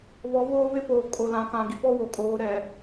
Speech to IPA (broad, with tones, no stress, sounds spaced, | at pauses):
β ɔ˨˦ β oː˦ β ɪ˦ p oː˨ kʼ o˨ l ã˨ k ã˨ ɡ i˨ p ɔ˦ w o˨ kʼ oː˨˦ ɾ ɛ˨